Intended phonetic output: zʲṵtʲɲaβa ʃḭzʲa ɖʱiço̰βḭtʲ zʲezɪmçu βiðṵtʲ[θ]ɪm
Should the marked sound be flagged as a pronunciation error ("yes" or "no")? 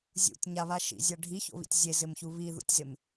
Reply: yes